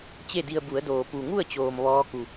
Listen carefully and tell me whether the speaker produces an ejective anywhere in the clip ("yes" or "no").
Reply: no